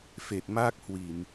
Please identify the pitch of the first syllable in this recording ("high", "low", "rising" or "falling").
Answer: low